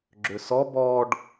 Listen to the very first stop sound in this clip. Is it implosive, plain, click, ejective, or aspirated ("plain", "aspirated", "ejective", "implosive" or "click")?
click